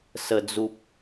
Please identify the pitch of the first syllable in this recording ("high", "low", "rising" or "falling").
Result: low